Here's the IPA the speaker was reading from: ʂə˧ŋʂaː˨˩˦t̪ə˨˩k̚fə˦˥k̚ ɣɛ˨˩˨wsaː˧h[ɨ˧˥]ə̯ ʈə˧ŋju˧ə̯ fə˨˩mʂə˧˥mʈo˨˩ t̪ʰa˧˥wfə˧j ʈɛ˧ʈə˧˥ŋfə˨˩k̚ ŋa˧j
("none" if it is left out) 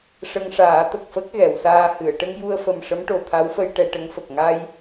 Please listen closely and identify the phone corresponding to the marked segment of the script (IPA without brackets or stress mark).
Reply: ɨ˨˩˨